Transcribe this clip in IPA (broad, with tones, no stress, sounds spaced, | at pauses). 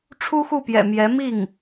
ʈ͡ʂʰ u˥ x u˥˩ p j ɛ̰˨˩ m j ɛ˧˥ m i˥˩ ŋ